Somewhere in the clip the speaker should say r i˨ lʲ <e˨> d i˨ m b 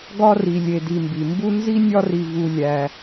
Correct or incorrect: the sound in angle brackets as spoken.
correct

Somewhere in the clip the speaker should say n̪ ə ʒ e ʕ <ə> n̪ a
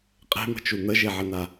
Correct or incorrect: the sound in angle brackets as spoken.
correct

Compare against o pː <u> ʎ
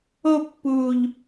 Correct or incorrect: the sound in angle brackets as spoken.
incorrect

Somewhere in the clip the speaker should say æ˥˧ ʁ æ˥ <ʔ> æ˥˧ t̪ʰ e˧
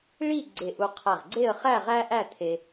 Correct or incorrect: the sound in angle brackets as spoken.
correct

